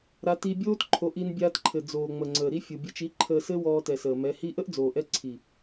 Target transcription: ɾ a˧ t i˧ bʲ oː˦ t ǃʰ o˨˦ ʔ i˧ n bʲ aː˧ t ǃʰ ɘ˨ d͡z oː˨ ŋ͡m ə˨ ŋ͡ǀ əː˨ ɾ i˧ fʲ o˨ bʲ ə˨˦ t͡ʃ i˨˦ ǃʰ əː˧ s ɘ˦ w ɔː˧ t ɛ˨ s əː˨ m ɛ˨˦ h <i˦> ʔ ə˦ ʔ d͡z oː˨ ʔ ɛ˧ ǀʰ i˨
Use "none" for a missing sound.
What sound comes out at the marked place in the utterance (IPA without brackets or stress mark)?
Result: i˦